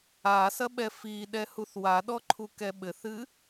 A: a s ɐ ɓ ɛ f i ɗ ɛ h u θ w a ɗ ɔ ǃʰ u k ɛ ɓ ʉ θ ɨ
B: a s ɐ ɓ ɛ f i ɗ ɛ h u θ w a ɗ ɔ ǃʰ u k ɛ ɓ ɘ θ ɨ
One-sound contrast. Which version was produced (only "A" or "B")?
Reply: B